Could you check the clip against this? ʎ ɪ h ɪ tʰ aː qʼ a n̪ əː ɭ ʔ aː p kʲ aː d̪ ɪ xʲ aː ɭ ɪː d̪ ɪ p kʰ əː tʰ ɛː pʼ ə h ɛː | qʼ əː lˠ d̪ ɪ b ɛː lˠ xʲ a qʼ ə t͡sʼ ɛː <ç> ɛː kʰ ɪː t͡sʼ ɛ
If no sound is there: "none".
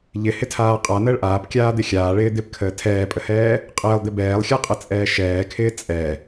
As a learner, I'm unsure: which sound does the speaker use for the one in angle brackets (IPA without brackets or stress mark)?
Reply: ʃ